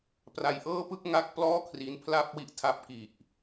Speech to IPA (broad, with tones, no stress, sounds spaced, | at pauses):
p r a˧ j ʔ ɤː˥˩ p ɯ˥˩ k̚ ŋ a˥˩ k̚ p l ɔː˥˩ kʰ r i˦˥ n pʰ l a˥˩ p̚ w i˦˥ ʔ tʰ a˦˥ p̚ k i˨˩ ʔ